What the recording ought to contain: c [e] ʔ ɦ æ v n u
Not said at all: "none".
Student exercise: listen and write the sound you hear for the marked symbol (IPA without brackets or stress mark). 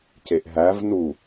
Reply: e